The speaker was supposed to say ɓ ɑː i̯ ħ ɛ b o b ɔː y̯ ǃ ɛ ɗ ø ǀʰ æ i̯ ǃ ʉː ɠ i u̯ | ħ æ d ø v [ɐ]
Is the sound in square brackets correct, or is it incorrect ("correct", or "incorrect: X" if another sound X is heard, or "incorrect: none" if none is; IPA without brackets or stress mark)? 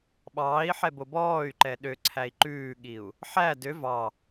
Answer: incorrect: ɑ